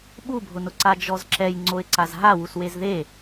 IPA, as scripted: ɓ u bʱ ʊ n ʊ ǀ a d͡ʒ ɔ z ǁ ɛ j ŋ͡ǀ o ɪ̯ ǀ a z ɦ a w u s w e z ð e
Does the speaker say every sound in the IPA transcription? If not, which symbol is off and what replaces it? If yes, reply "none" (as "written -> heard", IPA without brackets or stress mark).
none